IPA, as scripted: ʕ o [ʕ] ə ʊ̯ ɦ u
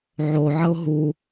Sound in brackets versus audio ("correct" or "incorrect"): correct